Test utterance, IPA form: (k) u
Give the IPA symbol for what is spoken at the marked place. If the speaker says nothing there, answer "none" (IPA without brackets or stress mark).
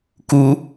k